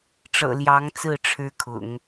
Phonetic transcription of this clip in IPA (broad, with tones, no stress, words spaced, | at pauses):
ʈ͡ʂɤ̰˨˩ ljɑ˧˥ŋt͡sɹ̩˥˩ ʈ͡ʂʰɻ̩˥kʰʊ̰˨˩˦ŋ